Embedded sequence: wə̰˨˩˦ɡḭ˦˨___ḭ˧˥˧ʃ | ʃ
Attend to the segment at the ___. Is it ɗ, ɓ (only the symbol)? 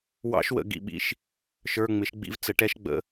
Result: ɓ